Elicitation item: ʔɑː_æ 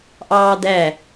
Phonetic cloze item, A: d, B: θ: A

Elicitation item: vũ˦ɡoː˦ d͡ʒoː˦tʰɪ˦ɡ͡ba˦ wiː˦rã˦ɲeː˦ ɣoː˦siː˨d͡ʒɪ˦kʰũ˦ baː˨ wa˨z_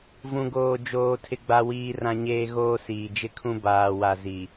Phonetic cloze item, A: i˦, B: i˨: B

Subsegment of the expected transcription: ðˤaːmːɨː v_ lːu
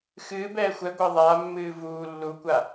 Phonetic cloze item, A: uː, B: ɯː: A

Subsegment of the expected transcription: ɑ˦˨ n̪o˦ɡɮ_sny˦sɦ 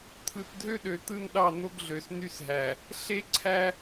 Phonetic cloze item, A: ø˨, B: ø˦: A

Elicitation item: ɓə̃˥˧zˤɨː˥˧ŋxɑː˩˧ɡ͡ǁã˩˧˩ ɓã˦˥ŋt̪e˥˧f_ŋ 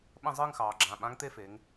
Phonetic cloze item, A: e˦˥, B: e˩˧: B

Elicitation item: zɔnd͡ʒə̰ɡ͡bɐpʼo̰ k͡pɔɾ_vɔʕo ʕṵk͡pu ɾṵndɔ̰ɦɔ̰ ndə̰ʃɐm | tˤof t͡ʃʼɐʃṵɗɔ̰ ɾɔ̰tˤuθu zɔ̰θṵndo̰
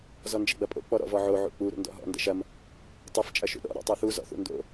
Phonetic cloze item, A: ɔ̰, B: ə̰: A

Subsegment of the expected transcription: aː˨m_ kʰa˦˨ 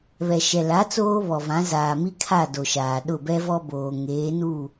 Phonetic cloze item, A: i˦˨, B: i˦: B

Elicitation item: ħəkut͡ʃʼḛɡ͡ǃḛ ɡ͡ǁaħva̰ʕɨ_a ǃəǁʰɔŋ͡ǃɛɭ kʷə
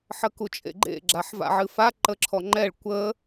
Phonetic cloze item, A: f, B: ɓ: A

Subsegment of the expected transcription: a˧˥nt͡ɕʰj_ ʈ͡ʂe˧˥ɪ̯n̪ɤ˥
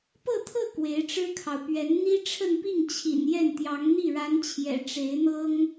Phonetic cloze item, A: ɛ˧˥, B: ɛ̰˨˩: B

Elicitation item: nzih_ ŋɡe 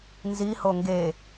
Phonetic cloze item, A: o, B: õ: A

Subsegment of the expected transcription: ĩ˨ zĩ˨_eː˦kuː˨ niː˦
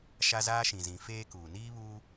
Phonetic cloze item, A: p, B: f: B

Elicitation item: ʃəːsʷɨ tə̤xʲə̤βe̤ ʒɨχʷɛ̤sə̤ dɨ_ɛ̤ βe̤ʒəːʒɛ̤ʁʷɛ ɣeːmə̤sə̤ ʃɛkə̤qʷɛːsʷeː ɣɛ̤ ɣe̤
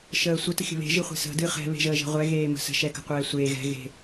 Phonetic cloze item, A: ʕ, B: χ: B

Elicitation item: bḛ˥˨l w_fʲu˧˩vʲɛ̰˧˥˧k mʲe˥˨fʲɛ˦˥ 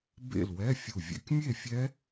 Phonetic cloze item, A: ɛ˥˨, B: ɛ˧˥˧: B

